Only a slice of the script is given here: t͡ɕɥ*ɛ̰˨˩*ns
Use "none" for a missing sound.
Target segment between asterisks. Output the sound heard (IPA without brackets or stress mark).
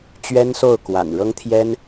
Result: ɛ˥